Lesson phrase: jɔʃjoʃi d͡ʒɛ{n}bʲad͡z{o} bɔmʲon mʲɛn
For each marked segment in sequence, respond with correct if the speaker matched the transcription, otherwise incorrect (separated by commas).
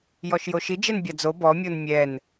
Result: correct, correct